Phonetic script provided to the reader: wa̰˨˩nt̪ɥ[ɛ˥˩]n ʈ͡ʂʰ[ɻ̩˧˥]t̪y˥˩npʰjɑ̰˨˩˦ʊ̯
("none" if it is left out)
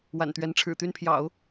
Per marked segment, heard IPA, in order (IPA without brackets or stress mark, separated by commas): ɛ˧˥, ɻ̩˨˩